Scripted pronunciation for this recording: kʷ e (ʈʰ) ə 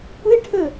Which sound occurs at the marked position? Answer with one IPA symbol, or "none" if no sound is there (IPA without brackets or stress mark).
ʈʰ